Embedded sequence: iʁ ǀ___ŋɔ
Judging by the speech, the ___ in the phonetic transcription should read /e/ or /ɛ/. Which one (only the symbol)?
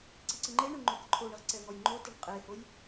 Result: ɛ